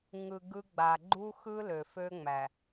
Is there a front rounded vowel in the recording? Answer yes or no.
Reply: yes